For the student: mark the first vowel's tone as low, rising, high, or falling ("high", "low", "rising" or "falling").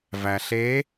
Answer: low